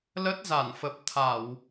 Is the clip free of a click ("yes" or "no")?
yes